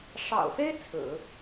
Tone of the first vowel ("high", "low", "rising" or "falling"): low